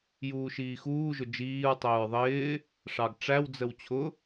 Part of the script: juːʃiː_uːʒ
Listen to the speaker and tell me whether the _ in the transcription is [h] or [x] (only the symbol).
x